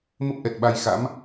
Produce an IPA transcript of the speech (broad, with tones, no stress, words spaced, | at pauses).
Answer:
mə˦˥p̚ʔɛ˨˩t̚ɓa˧jxa̰˧˥m